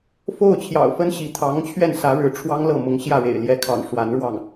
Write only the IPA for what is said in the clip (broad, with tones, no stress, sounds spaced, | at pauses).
f o˥˩ ʊ̯ t͡ɕʰ j ɑ̰˨˩ ʊ̯ f ə˥ n ɕ i˧˥ t̪ʰ ɑ˧˥ ŋ t͡ɕʰ ɥ ɛ˥˩ n s ä˧˥ ɻ ɻ̩˧˥ ʈ͡ʂʰ w ɑ˥ ŋ l ɤ˥˩ m ʊ˧˥ ŋ ɕ j ä˥˩ ɻ ḛ˨˩ ɪ̯ l j ɛ˧˥ kʰ ɑ̰˨˩ ŋ ʂ w a˧˥ n ɻ w ɑ˥˩ ŋ